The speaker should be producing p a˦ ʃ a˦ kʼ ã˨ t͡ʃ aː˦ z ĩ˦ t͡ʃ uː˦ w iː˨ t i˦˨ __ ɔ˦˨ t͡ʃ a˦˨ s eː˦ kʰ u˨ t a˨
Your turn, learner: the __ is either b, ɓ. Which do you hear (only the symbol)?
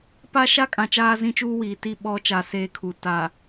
ɓ